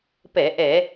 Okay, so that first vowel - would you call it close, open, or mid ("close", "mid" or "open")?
mid